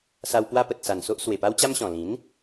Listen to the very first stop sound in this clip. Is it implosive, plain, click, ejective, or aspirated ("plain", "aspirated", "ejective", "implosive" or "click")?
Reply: plain